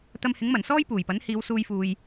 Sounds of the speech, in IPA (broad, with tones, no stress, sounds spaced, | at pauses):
t̪ ɐ˧ m h ɪ˨˥ ŋ m ɐ˨˩ n s ɔː˥ j p uː˨˩ j p ɐ˨˥ n h iː˨˧ w s uː˧ j f uː˨ j